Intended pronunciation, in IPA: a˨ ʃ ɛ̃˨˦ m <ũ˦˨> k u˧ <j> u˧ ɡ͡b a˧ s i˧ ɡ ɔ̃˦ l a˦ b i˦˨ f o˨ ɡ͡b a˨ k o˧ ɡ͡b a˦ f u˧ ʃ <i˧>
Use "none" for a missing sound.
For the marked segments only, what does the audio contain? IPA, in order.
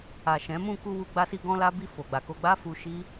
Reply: ũ˦˨, w, i˦

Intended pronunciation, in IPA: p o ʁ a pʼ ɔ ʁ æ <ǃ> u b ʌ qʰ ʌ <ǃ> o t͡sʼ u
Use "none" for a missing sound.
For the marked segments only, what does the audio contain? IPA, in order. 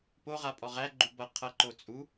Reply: ɡ͡ǃ, ǃ

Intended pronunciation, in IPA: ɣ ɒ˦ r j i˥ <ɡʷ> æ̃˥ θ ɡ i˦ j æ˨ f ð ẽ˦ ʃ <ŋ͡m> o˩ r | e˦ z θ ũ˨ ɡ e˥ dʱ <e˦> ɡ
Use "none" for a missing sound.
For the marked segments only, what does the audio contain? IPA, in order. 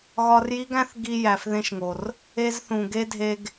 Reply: ɡ, ŋ, e˦

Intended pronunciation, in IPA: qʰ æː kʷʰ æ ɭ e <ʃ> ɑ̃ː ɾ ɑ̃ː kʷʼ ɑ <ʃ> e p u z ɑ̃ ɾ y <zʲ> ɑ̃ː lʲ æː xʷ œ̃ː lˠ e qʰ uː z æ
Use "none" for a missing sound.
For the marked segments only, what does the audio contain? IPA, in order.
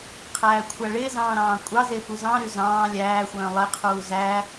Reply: z, z, z

